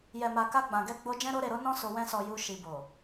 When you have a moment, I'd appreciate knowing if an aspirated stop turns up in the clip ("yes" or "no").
no